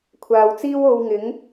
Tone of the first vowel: low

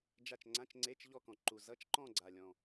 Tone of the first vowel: falling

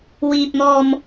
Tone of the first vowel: low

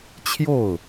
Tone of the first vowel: falling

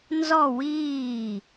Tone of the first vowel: falling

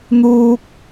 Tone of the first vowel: high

